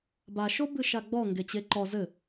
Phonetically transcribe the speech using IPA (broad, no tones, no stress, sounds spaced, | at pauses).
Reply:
b a ʃ o b ɨ ʃ a ɡ͡b ɔ ŋ ɡ e t͡ɕ e ǃ ɔ z ɘ